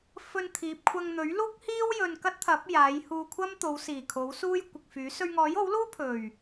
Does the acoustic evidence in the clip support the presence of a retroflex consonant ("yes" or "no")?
no